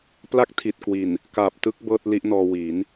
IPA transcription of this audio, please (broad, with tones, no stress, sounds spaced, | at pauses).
p l a˥˩ k̚ tʰ i˨˩ t̚ k w i˨˩ n | k a˨˩ p̚ t ɯ˦˥ k̚ b ɤː˥˩ t̚ l i˦˥ ʔ n ɔː˧ w i˩˦ n